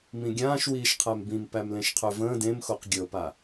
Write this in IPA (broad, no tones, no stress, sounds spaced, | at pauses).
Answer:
m ĩ ɡʲ ãː ʃ w iː ʃ qʰ æ m b ĩ m p æ m l ẽ ʃ qʰ ø v ə̃ː d ẽ m x o q ɡʲ ɤ p a